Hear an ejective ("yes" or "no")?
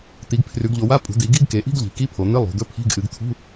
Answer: yes